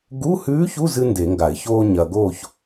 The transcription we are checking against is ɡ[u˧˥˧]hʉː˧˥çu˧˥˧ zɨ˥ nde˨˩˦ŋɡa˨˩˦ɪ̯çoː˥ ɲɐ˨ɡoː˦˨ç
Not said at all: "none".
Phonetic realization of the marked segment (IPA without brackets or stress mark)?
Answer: u˧˥˧